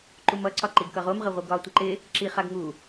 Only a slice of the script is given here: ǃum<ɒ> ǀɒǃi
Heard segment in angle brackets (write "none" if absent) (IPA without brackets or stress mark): ʌ